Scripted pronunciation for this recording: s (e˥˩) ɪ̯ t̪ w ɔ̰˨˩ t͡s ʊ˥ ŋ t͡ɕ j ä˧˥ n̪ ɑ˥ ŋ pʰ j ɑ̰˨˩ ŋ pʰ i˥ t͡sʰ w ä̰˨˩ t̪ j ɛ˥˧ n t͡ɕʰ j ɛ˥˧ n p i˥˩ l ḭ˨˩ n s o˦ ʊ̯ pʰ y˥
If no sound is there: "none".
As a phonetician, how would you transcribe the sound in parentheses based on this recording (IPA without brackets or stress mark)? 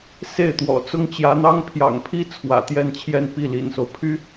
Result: e˥˩